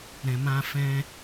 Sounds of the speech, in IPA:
ɾ ɛ̃˨ m ã˧ f ɛ̃˦

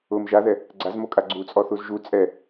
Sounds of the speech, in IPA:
ʊ m ʒ a ð ɛ | ɡ͡ǀ a z m o kʼ a ɡ͡ǀ u t͡sʼ ɔ θ u z ʒ u t͡sʼ ɛ

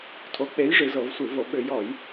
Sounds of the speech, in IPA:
tʰ o˨˥ k͡p e˨˥ j ʐ ɨ˩˧ z ɤ˧˩˧ v sʷ ɨ˧˩˧ v o˧˩˧ ɓ ʏ˧˩˧ j ɔ˧˩˧ j

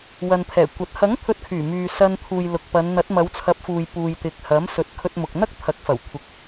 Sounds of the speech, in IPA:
w ɐ˨ n pʰ ɛː˨˩ kʷ ɐ˨˥ t̚ h ɐ˨˥ ŋ t̪ʰ ɵ˧ t̚ kʰ yː˨˩ m yː˨ s ɐ˧ n t̪ʰ uː˨ j l ʊ˨ k̚ p ɐ˨˧ n n̪ ɐ˨˥ t̚ m ɐ˨˧ w t͡sʰ ɐ˨˥ p̚ f uː˨ j p uː˨ j t̪ ɪ˨ k̚ h ɐ˨˥ m s ɵ˧ t̚ kʰ ɵ˧ t̚ m ʊ˨ k̚ n̪ ɐ˥ k̚ t̪ʰ ɐ˨˥ k̚ f ɐ˨˩ w kʷʰ ɪ˨˥ k̚

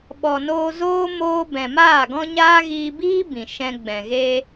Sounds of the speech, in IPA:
ɓ ɔ˨ n oː˧ z oː˦ m oː˦ b ɛ̃˨ m aː˦˨ ɡ ɔ̃˦ ɲ aː˦ ɣ iː˧ b iː˦ b ĩ˨ ʃ ɛ̃˧ ɡ͡b ɛ̃˨ ɣ e˧

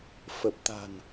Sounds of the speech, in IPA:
f ə˨˩ p̚ t̪ a̤˨˩ n

